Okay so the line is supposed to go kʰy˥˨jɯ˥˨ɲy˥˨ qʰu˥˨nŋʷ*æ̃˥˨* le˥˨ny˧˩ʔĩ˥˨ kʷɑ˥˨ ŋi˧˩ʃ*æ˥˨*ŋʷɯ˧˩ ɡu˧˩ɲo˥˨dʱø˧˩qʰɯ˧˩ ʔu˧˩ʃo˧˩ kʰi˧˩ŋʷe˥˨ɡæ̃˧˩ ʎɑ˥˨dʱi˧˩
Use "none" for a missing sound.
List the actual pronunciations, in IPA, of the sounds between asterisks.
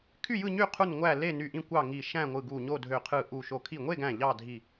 æ˥˨, æ̃˥˨

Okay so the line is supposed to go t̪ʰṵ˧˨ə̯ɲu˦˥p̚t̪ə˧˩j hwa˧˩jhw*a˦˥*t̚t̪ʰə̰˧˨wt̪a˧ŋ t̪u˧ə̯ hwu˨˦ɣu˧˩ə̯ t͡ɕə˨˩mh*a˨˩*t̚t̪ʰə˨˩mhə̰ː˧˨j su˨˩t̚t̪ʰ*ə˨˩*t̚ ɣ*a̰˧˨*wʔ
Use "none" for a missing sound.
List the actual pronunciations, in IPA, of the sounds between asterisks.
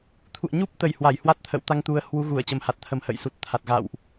a˦˥, a˨˩, a˨˩, a̰˧˨

